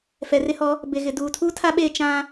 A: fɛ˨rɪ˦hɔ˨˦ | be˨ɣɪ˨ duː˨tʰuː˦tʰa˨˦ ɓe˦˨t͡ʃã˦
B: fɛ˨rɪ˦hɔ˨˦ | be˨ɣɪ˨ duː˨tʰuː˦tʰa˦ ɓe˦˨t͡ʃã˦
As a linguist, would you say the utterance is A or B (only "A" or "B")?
B